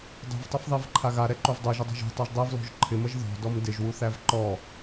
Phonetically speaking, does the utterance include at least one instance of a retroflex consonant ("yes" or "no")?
no